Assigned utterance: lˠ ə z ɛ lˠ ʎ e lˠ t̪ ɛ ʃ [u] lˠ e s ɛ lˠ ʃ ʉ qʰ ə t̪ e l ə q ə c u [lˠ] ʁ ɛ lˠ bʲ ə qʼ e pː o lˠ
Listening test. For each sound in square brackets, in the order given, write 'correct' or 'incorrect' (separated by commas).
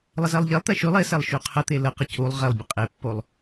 incorrect, correct